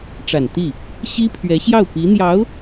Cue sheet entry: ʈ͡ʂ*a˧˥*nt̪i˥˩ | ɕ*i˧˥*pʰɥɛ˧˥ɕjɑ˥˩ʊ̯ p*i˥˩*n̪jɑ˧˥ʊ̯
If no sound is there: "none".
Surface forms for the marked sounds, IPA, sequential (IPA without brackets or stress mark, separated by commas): a˨˩, i˥, i˧˥